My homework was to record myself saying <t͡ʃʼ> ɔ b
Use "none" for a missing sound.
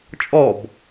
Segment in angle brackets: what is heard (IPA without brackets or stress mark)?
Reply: t͡ʃʼ